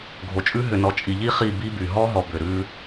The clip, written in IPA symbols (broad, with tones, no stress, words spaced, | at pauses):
ɡʱo˨t͡ʃʼʉ˦ ɦʏ˨nɔ˨t͡ʃʼi˨ʎi˦ χi˦˨ bi˦by˨ ɦɔ˦ɦɔ˨ bʏ˨ ɾʉ˦